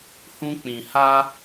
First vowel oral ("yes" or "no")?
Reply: no